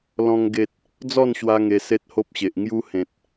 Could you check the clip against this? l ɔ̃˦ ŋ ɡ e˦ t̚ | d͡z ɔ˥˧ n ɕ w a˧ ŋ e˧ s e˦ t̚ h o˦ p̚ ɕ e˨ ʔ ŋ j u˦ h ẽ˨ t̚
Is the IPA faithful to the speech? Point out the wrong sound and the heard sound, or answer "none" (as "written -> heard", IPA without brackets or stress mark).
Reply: none